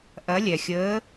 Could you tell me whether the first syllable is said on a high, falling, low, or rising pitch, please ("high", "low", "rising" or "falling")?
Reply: rising